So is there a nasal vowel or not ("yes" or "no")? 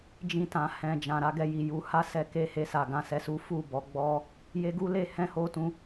yes